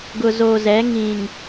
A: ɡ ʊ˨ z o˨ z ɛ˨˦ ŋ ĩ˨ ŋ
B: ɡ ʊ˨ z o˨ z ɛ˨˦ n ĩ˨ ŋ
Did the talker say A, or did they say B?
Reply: A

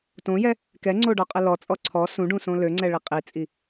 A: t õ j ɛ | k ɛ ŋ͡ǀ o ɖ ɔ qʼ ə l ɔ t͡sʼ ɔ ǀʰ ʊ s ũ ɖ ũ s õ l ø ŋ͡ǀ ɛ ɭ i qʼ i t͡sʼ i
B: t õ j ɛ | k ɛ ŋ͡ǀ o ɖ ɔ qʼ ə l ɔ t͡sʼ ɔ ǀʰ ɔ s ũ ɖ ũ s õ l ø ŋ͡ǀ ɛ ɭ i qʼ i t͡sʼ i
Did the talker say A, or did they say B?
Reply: B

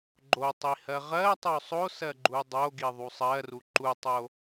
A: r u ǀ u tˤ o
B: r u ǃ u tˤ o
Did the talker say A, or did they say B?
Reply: B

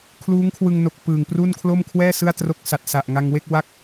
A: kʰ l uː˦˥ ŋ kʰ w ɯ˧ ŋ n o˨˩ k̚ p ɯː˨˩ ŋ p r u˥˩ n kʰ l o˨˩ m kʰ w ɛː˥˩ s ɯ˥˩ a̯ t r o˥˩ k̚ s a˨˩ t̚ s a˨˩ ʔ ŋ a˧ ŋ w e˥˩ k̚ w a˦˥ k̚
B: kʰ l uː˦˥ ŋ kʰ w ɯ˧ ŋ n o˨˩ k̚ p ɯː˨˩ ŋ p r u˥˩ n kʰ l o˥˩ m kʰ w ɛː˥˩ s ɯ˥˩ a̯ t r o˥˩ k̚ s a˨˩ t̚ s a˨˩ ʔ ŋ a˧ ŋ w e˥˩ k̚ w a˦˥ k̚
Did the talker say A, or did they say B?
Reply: B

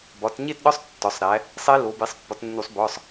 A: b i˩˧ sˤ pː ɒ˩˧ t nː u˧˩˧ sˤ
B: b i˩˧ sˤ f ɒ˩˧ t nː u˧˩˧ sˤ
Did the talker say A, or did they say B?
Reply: A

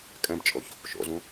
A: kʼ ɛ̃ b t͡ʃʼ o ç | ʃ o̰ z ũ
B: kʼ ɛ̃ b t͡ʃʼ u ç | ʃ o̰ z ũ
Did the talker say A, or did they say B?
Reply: A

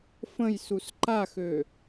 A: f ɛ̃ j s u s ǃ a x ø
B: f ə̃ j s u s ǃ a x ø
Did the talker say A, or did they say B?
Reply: B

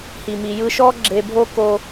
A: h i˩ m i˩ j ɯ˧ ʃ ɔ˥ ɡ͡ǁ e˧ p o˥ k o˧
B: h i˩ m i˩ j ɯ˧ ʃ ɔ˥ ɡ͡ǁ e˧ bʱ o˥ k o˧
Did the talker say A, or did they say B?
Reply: B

